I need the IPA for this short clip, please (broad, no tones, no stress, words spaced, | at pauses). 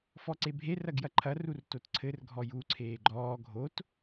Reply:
fɔǀebʱe rɐɡjɐǃʰɐ rurtotǀʰɘr ɡʱɔju ǀʰeːɡ͡ǃɔː ɡʱot